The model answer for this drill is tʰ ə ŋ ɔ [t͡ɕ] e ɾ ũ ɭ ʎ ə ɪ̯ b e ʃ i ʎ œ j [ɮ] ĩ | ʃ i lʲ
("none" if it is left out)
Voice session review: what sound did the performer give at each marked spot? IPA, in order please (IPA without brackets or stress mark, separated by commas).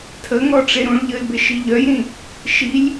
ʈ͡ʂ, ɾ